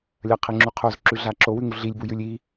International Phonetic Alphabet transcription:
lʲɐqʰeŋ͡ǁu qʰozǁʉɮa ǁowʉŋu ɮilʲbujʉlʲ i

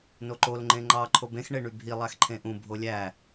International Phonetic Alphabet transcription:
noǃol ŋ͡ǃẽŋ͡ǃɑ ǃʰobẽx ɳeɳybʱi lˠæxǃʰẽʔũ bʱolʲæ

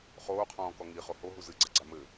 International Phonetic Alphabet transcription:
χoːqʰɔ̃ːkɔ ŋiχo hoɦu zɨɡ͡ǀaɡ͡ǀa mɘ

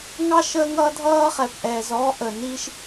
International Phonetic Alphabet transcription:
ŋɑ˧ʃ əː˧ŋʌ˧ dʱʌː˧χɛ˩p ʔɛː˩zɔː˧ʔəː˩niː˧ʃ

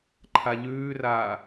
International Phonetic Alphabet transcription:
ǃʰaʎʉːraː

